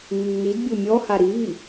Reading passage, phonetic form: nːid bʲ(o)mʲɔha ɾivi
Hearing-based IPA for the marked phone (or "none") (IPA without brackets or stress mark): o